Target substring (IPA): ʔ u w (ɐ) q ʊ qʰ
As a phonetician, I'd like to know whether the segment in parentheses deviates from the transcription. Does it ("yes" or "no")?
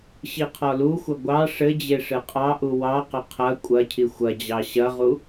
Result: yes